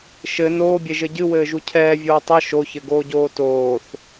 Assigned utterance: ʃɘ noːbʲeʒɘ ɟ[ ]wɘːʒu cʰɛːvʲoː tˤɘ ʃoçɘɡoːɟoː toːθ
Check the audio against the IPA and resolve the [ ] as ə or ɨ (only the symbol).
ɨ